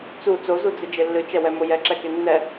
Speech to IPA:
t͡s u t͡s o z u d͡z ɨ d͡ʒ e lː ɨ t͡ʃ ɛ w ɛ m o j ɛ ǁ ɛ k e nː ɛ

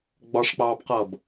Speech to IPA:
ɡ͡b ɒ ʂ k͡p ɑː b q ʌː b

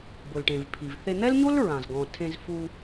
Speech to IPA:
b ʊ˩ l ʈ ẽ˩ v pʰ i˩ v θ e˧ n̪ ɛ˥ l ɲ o˥ l ɹ ã˩ z ɡ ɔ̃˩ tʰ ẽ˧ z f u˧

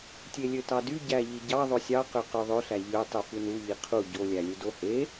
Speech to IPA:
tʲ e lʲ ø t ɑ d y ɟ æ ʎ i ɟ ɑ ðˤ o sʲ ɑ q ø q ø ðˤ ø ɬ æ ʎ ø tˤ y f ɯ n u ʎ i qʰ u ɟ o lʲ æ lʲ u d o h e

